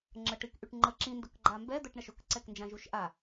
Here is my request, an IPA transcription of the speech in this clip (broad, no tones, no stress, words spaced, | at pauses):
ŋ͡ǁəʈik ʔyʈŋ͡ǃə ǁĩndʊkɡ͡ǃa mbɛd̪əʈɳəʃ ʊkǀɛknd͡ʒãʒuʃ ʔa